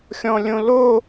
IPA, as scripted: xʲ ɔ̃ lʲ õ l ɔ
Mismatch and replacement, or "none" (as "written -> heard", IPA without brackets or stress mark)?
ɔ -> o